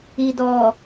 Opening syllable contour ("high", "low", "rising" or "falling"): low